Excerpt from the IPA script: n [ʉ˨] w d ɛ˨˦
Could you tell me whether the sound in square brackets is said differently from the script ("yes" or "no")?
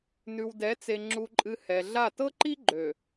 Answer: no